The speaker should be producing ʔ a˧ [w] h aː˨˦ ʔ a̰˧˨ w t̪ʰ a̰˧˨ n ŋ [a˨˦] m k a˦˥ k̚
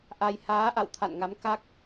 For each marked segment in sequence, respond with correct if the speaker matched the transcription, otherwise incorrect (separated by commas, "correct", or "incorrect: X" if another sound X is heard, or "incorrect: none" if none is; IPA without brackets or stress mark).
incorrect: j, correct